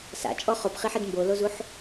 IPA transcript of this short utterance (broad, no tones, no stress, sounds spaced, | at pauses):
s a̰ t͡ʃʼ ɔ χ o p χ i ħ ɪ d m b o l o z u ħ